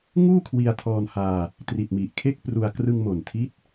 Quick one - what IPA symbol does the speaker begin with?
ŋ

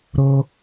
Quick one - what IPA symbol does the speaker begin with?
ɾ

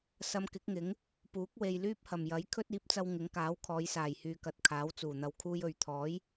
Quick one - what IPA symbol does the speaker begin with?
s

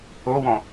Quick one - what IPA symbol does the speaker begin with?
o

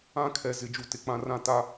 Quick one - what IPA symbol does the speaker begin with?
ã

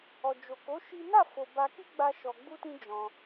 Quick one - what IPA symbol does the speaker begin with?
ɔ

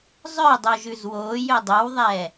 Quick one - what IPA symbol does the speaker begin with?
zˤ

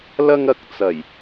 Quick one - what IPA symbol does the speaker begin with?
l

